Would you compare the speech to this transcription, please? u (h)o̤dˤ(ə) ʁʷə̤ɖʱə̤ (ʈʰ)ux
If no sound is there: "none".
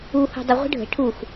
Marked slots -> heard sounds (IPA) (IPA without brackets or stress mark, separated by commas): h, ə, ʈʰ